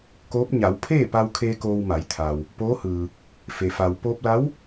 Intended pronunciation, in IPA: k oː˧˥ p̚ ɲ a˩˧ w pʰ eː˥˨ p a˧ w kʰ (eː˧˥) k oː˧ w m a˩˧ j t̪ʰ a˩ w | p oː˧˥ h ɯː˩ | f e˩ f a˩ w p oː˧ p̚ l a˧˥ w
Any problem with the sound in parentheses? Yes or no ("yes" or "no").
yes